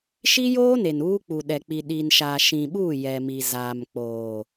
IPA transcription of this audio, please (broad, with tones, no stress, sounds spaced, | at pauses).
ʃ i˦ j oː˦ n e˨ n uː˦ k͡p u˨ ɗ ɛ˨ k͡p i˨ ɗ i˨ n ʃ aː˨ ʃ ĩ˨ ɓ uː˦˨ j ɛ˨ m i˨ z aː˨ m k͡p oː˨